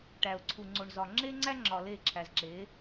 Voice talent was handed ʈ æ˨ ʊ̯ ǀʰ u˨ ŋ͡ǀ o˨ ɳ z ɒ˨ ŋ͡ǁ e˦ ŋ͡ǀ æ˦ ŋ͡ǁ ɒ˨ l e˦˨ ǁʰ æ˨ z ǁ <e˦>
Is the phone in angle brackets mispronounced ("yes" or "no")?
yes